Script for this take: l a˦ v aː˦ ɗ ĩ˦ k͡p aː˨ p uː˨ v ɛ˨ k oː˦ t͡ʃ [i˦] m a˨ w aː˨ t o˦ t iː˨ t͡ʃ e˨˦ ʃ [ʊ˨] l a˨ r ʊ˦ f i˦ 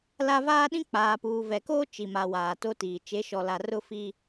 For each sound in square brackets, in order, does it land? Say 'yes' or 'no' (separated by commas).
no, no